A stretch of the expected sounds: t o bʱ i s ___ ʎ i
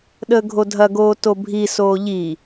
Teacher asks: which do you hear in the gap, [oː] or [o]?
oː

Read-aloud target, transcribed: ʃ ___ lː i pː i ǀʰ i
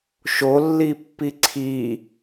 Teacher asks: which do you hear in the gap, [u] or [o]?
o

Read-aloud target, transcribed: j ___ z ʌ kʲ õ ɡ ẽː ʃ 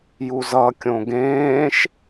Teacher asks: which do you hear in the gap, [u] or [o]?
u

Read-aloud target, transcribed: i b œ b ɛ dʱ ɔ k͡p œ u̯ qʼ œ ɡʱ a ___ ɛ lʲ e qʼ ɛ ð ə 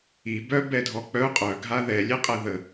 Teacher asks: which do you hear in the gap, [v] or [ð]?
ð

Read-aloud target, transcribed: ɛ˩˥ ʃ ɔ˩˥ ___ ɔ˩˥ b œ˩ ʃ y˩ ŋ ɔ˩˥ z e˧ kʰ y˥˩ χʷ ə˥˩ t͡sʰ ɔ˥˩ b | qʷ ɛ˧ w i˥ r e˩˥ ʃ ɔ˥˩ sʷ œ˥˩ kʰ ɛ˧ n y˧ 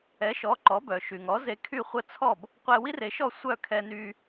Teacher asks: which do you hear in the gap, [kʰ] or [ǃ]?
ǃ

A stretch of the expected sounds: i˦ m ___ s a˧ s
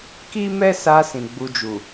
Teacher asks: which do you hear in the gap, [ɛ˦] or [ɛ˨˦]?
ɛ˦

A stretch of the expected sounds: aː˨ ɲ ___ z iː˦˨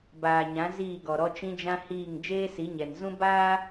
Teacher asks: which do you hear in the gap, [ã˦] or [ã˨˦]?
ã˨˦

